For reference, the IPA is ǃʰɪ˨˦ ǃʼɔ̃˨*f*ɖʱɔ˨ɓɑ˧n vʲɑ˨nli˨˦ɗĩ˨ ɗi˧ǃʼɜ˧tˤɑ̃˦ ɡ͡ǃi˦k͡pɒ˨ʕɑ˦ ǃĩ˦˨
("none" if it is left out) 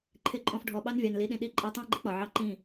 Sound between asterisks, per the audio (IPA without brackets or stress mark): f